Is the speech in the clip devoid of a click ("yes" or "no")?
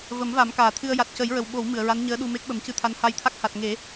yes